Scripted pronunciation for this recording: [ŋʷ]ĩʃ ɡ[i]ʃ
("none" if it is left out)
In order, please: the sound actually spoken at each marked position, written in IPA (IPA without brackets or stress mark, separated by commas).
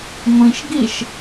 ŋʷ, i